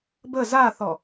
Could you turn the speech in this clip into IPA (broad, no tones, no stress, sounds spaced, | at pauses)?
b ə z a θ ɔ